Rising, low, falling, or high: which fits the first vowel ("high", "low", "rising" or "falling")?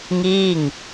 falling